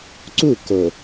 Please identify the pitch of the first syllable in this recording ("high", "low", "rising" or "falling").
falling